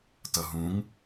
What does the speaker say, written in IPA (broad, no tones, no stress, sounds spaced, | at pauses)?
t ʌ ɦ ũ ŋ